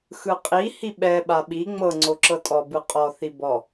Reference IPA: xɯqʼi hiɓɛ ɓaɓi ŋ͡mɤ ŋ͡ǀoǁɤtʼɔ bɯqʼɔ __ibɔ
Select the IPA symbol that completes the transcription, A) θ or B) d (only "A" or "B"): A